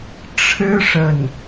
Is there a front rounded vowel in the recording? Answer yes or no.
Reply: no